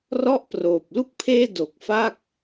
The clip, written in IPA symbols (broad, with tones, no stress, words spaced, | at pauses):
rɔ˥˩ʔproː˨˩p̚ lu˥˩k̚pʰeː˥˩ do˨˩k̚ fa˥˩k̚